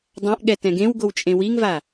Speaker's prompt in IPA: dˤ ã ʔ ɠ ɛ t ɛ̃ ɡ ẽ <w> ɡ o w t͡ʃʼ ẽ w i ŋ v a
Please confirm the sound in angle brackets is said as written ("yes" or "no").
yes